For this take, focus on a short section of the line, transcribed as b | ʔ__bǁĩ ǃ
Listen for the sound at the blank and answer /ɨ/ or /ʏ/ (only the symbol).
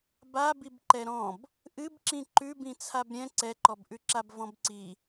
ɨ